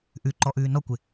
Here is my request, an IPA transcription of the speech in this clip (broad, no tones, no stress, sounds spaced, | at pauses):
ʔ ʉ ǃ ɔ ʔ ʉː n ɔ kʷ ɪ